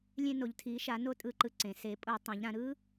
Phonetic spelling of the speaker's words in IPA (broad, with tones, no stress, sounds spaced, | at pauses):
lʲ ẽ˧ n o˩˧ ʎ tʰ i˩˧ ʃ a˩˧ n o˦˥ tʼ ɯ˧ ǃ ɯ˧ ǀ ẽ˩˧ s e˩˧ pʼ o˧˩˧ tˤ ɛ̃˩˧ ʎ ɾ ã˩˧ ɾ ɯ˦˥